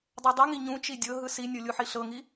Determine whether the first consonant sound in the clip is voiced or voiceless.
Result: voiced